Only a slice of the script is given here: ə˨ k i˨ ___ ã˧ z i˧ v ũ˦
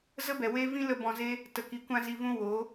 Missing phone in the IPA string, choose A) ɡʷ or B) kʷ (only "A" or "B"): B